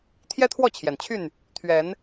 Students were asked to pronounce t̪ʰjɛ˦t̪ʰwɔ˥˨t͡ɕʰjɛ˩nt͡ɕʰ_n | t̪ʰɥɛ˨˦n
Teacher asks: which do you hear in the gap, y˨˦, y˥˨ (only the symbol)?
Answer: y˥˨